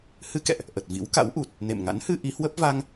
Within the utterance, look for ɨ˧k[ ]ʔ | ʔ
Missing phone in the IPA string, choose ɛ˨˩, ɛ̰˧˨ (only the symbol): ɛ̰˧˨